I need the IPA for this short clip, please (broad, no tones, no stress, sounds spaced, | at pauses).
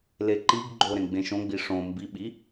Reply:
l e ǃ i ɡ ɡ͡ǃ o ɾ ẽ ɡ͡b ẽ ʃ õ ɡ͡b i ʂ õ m b i ɓ i